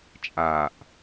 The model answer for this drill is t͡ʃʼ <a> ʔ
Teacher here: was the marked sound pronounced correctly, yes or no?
yes